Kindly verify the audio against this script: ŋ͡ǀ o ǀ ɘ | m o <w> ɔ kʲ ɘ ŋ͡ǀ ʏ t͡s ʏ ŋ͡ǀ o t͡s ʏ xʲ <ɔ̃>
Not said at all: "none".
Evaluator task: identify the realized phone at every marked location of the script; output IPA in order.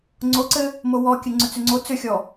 w, ɔ

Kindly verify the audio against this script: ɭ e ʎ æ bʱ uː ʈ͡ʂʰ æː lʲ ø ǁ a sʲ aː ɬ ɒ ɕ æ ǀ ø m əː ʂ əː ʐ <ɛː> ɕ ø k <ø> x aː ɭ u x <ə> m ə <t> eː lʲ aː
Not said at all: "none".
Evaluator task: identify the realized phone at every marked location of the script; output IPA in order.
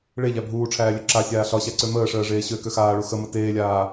eː, ø, ə, t

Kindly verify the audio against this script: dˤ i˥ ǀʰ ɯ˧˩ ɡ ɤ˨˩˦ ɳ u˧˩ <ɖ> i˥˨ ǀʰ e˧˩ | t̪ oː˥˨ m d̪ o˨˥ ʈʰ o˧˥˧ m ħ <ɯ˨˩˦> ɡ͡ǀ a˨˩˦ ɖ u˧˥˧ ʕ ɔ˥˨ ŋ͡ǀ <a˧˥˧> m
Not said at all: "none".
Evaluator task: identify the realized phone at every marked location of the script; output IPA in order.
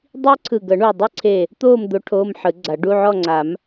dˤ, ɯ˨˩˦, a˨˩˦

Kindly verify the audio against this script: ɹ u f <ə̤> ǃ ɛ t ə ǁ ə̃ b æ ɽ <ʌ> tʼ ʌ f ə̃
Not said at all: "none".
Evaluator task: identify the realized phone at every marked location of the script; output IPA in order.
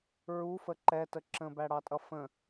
ə, ɑ

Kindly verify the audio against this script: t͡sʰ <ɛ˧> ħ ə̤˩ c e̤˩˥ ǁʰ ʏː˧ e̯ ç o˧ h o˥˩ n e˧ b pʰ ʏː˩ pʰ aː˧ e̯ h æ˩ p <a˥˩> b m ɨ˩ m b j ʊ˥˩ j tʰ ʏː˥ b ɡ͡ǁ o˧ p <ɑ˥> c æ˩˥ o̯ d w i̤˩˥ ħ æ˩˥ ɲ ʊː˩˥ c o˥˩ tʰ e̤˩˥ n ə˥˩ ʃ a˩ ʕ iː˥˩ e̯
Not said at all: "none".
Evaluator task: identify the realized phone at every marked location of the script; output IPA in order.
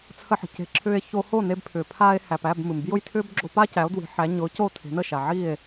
ə˧, æ˥˩, a˥

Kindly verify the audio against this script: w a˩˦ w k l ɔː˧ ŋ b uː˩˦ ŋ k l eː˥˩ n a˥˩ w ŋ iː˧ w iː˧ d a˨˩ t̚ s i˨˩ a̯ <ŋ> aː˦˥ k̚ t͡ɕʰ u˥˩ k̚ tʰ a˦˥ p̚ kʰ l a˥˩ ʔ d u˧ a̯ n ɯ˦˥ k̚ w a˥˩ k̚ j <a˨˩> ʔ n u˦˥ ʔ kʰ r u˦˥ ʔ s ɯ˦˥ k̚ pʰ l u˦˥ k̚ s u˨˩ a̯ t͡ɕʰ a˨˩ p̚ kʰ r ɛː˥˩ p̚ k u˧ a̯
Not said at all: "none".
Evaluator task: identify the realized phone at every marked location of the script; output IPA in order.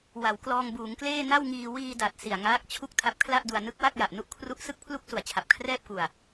ŋ, a˨˩

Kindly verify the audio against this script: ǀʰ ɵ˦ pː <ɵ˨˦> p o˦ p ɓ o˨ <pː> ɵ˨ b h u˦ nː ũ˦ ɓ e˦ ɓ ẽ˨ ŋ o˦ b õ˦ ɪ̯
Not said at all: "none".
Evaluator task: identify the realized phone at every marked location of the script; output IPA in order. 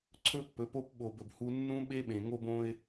ɵ˨˦, b

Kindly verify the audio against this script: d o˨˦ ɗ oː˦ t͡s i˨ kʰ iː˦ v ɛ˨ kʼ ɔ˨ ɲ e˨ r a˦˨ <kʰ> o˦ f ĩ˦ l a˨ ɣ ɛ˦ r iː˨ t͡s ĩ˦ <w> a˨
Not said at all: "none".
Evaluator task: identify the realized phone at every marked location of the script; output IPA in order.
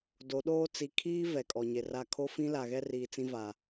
kʰ, v

